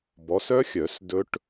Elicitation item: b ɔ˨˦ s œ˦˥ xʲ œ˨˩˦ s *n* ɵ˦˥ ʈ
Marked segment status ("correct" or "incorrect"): incorrect